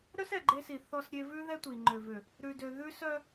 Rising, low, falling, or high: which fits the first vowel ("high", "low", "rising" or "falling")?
high